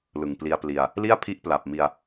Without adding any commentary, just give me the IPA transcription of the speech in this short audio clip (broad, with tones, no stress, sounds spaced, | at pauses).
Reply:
l ɯ˨˩ ŋ p l i˧ a̯ p l i˧ a̯ | l i˥˩ a̯ pʰ i˦˥ ʔ p l a˨˩ p̚ m i˧ a̯